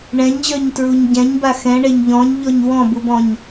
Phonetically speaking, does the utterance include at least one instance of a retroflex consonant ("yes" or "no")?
yes